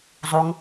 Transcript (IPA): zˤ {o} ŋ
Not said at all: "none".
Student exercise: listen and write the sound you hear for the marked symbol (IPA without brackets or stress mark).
o